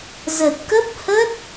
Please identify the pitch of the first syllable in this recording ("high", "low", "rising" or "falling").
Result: low